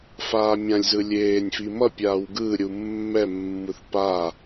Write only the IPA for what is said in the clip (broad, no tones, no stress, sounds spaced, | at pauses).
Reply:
f aː mʲ ã lʲ z ɯ lʲ eː nʲ f i m ʌ pʲ aː w ɡ ɯ ɾʲ u mː ɛ mː ɯ θ p a